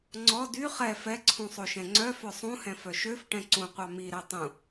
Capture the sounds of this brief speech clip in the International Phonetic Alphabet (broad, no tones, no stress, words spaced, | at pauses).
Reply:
ŋ͡ǀɔ dy χɛ fɛǀʰũsˤo ʃɛ̃ŋ͡ǀœ fœsˤũhɛ̃ fœʃøf ʈɛ̃ǀũqʷɑ miɾɛ tˤũ